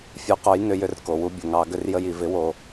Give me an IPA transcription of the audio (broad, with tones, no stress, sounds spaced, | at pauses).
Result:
fʲ u˩˥ q o˩˥ j n ʏ˧˩˧ j ʏ˧ r k o˩ w u˧ bʲ ə˩ ŋ ɑ˧˩˧ ɡ ʏ˧ r j ə˧ j i˩ v ɪ˩˥ w o˩